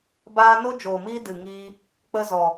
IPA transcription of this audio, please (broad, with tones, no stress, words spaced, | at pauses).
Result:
baː˦ no˦ d͡ʒoː˨miː˦dɨ˨ŋiː˧ | k͡pə˦ zɔ˨